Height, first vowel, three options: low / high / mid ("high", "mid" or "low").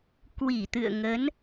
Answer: high